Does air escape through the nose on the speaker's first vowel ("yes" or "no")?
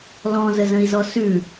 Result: yes